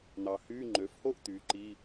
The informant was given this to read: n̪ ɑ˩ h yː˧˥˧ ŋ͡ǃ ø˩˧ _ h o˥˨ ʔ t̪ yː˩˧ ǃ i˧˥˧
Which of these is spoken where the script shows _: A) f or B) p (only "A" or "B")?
A